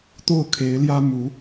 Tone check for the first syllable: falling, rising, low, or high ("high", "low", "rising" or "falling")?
falling